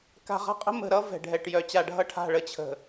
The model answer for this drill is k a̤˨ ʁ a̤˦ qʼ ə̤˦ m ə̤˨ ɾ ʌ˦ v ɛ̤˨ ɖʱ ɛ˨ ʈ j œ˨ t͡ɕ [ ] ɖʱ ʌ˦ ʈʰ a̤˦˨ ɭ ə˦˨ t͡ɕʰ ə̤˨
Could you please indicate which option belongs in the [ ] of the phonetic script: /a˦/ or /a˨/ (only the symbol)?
a˨